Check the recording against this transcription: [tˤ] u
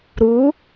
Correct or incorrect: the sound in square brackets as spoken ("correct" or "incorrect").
incorrect